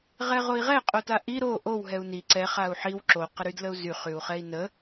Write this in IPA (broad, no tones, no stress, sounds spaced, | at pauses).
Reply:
ʁ ɛ ʁ o i̯ ʁ ɛ qʼ o t a ʔ i ɾ o ʔ o w ɦ ɛ u̯ n i ǀ ɛ χ a u̯ ħ i w ǁ o q ə ɾ y d l ə u̯ z y χ y u̯ χ ɛ i̯ n ə